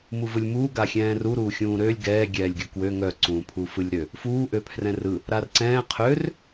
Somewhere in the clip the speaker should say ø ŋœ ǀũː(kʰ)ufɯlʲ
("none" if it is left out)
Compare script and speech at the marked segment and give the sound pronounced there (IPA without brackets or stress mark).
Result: pʰ